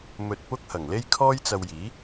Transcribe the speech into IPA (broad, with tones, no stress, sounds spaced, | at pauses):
m ɵ˧ t̚ p ʊ˥ k̚ h ɐ˨˩ ŋ l e˥ j kʰ ɔː˥ j t͡s ɐ˧ w j iː˨˥